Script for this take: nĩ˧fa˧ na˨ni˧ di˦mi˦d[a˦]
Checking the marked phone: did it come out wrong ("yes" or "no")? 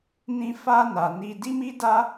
no